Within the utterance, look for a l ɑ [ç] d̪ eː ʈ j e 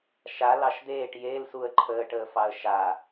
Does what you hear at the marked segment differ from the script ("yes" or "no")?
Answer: yes